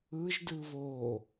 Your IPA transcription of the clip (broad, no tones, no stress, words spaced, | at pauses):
ɯʒdɯ βo